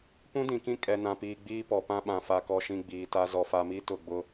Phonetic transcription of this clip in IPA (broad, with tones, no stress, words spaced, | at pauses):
pũ˦dĩ˨kĩ˦ kʼɛ˨nã˨piː˨ ɡ͡biː˦pɔ˨pã˦ɓã˨ fa˨kɔ˨ʃĩ˨ ɡ͡biː˨ta˦ zɔ˨fa˨mi˦ tʊ˦˨ɡ͡bʊ˦